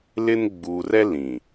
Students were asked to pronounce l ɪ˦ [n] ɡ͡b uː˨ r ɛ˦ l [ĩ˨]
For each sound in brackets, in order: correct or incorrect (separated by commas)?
correct, correct